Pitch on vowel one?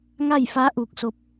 falling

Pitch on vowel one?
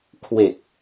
low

